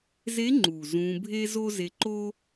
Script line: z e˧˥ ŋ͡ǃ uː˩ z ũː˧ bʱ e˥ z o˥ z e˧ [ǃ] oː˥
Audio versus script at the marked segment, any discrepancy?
no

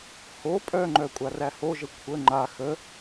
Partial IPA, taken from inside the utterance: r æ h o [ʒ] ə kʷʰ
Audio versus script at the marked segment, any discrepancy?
no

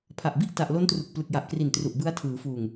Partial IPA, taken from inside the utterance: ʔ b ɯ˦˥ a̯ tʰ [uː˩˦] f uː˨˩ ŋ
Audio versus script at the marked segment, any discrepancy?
yes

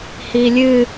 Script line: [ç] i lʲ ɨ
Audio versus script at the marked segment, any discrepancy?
yes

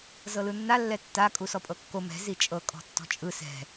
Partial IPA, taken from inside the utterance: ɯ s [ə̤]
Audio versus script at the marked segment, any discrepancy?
yes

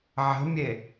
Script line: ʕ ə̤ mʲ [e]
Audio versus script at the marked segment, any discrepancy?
no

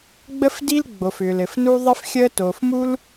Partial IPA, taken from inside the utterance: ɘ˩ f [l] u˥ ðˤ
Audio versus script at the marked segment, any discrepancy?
yes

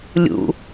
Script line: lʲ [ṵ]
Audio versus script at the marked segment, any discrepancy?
no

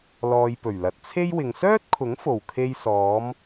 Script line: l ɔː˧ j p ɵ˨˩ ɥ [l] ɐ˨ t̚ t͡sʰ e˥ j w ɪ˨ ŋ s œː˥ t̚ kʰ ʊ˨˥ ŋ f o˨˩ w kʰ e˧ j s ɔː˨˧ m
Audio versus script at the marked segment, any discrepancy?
no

